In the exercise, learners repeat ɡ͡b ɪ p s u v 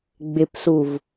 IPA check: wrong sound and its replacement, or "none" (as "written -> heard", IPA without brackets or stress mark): none